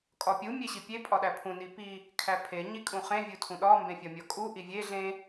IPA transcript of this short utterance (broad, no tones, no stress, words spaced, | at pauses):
kʼɒpʲu mʲeɕipʲe pʼɒɗæpʰũ nipi | kʰæpʰe ɲikʼũχẽ vʲutʰũɗɒ mbẽfʲɒmʲɒkʼu ʔivʲe ɮẽ